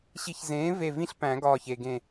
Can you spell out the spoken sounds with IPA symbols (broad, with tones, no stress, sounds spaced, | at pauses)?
ɕ i˨˩˦ ç z ẽː˩˥ v e˧˩ v ĩ˦ ɬ p æ̃˨˩˦ ɡ ɒː˧˩ ç e˩ ɡ ẽ˧˩